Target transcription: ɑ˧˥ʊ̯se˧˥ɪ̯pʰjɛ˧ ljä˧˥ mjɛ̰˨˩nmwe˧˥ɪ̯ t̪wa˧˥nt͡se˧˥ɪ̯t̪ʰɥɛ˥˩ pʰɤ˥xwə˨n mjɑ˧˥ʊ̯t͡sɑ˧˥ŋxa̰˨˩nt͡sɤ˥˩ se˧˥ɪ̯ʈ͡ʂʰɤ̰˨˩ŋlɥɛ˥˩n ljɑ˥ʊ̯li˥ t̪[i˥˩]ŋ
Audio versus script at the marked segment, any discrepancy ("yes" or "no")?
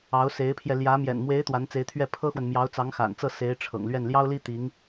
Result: yes